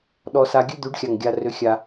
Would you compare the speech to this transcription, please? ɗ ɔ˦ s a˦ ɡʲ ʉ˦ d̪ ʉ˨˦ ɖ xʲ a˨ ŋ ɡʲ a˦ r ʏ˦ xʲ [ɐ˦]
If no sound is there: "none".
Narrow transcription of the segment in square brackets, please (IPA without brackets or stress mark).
a˦